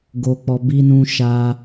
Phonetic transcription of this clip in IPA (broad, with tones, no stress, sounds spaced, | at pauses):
ɡ o˧ k͡p ɔ˧ b i˦ n ũ˦ ʃ a˦